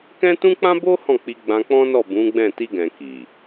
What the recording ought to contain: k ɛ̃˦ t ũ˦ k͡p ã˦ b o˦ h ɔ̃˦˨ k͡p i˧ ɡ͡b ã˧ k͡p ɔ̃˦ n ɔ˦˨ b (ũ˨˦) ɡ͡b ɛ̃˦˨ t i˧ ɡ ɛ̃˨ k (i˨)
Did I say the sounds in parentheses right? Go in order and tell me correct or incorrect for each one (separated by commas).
correct, correct